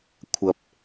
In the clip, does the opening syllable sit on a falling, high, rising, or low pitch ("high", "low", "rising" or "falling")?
low